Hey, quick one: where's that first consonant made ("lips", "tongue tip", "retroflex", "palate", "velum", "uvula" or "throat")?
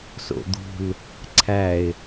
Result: tongue tip